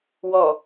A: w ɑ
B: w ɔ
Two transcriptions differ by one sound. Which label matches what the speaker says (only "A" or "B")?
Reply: B